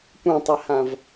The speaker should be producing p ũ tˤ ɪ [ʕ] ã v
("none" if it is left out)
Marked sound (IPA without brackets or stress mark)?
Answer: h